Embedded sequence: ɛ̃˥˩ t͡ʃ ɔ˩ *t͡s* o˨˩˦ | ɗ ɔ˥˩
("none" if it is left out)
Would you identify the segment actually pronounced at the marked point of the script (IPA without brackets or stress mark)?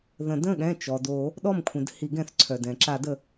d